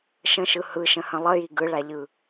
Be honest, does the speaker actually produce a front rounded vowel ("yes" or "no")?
no